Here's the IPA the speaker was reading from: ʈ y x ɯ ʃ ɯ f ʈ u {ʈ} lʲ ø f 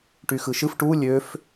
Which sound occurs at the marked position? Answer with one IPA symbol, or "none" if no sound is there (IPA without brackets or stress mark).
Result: none